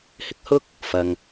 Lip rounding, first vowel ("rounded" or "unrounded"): unrounded